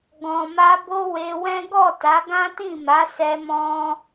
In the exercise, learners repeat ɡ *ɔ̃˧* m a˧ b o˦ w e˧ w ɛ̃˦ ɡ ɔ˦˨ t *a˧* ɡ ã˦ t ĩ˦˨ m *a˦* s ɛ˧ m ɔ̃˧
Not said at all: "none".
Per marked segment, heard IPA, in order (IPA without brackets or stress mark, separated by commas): ɔ̃˨, a˨˦, a˨˦